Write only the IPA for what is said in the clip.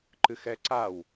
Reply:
ǃɨxɛǀaw

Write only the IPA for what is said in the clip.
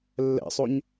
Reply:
lːɛ̰sˤoɲ

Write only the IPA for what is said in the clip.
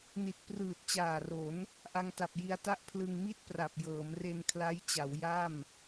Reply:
ni˨˩t̚prɯː˨˩t̚t͡ɕaː˨˩ro˩˦n | ʔa˧ŋta˨˩p̚ ji˧a̯ta˥˩ʔ pʰlɯ˧ŋmi˥˩t̚pra˨˩p̚ jɤː˩˦mre˧nkʰla˦˥jt͡ɕa˩˦w ja˥˩m

